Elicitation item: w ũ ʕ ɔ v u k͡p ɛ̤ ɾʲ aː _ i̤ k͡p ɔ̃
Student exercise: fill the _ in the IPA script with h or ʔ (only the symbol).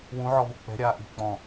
ʔ